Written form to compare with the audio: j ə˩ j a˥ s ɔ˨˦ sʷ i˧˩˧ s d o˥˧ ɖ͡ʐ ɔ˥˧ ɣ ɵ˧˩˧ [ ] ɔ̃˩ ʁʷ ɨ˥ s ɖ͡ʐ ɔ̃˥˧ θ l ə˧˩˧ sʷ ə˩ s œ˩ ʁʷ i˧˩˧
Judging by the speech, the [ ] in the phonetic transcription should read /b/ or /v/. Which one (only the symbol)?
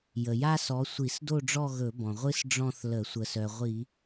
b